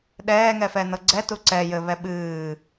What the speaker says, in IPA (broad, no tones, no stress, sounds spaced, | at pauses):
ɗ ɛː ŋ ɛ f ɛ n ɤ ɡ͡ǀ ɛ t u ǀ ɛ j ɘ β ɛ ɓ ɨː